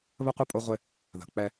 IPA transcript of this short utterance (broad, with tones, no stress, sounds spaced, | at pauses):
β ə˦ qʷ ə˦˨ pʼ o˦ ʁʷ ɪ˦ | ð ə̤˨ k͡p ɛ˦